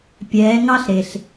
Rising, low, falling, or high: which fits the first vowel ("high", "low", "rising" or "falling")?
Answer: rising